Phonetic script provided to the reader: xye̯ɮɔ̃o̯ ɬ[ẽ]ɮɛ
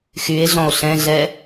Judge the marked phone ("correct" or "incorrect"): incorrect